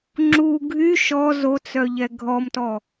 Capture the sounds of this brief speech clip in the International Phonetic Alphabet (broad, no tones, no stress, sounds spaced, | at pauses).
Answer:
ŋ͡ǁ u ɡʱ y ʃ ɔ z o t͡s œ ʎ ɛ ɡʱ ɔ m t ɔ